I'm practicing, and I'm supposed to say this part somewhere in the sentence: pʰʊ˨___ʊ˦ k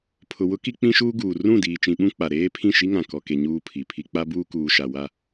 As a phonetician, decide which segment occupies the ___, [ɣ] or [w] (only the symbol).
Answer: w